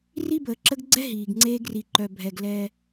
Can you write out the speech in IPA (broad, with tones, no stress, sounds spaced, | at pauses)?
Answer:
r i˦ b əː˨ ǁ ə˦ ɡ ɡ͡ǀ ɛ˦ ɦ iː˨ ɡ ŋ͡ǀ eː˦ ɡ r i˨ ǃ œ˨ bʱ ɛ˨ ɡ l ɛ˦